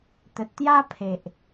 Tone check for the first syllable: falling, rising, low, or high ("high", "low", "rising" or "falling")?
low